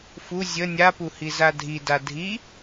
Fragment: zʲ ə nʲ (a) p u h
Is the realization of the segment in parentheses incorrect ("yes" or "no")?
no